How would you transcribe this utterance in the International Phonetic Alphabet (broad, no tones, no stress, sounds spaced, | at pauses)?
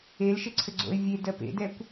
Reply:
e l ʃ ɘ ǀʰ ɘ ɡ͡ǀ o̰ ɪ̯ vʲ e d ɜ p ḛ d ɛ kʷ